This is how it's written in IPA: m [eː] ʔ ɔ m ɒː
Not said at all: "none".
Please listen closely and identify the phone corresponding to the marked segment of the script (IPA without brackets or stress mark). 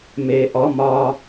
eː